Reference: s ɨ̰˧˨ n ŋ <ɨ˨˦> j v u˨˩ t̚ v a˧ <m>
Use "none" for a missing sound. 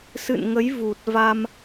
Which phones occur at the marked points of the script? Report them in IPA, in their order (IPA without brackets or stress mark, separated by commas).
ə˨˦, m